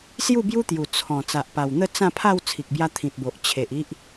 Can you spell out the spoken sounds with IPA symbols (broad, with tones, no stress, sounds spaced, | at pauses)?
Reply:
s j u˥˧ b j u˦ t̪ j u˨˩ t͡sʰ ɔ̃˨˩ t͡s a˨ ʔ p a˨˩ w n̪ ə˥˧ t͡s ã˥˧ pʰ a˥˧ w t͡sʰ i˨ k̚ b j a˧ t̪ʰ ĩ˨ t̚ b o˨ ʔ t͡ɕʰ e˨ ʔ i˦ ʔ